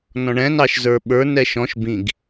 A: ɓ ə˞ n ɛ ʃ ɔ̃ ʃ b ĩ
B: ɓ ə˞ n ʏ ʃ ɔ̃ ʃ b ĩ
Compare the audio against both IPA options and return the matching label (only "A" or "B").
A